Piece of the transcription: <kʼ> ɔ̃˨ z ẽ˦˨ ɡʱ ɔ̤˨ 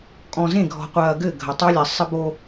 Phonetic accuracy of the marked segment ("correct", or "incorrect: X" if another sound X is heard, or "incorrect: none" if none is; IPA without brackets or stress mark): correct